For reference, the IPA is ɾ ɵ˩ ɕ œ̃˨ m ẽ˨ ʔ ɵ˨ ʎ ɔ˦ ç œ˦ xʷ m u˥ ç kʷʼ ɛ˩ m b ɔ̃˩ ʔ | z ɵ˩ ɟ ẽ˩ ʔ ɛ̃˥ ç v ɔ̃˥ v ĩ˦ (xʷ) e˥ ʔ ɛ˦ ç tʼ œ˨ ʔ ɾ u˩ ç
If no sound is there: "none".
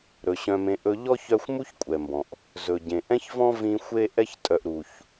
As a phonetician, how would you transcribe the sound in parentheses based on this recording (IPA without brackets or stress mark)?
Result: xʷ